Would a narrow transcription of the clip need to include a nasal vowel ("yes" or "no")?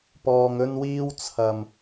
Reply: no